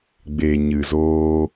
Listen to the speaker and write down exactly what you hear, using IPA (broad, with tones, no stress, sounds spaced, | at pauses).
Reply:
ɡ͡b eː˨ ɲ ɨ˨ z oː˧